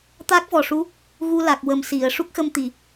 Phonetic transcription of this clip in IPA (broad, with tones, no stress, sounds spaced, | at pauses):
t̪ a˦˥ k̚ v ɔ˨˩ ʂ u˧˥ | ɣ u˧ l a˨˩ k̚ w ə˨˩ m s i˨˩˨ ə̯ ʂ u˦˥ k̚ x ə˧ m t̪ i˨˩˨